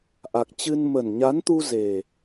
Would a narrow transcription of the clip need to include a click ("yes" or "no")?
no